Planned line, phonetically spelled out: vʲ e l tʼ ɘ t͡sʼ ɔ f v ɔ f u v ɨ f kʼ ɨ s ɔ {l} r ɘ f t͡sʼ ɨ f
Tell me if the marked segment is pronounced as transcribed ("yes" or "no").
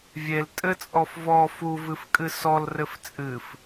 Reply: yes